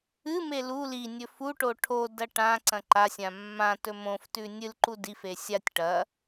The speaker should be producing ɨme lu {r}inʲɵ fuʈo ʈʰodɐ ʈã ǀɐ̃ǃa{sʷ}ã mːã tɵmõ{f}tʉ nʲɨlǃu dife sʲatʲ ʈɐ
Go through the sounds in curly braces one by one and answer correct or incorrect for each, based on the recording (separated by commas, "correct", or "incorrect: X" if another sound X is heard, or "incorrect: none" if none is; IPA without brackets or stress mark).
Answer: incorrect: l, incorrect: sʲ, correct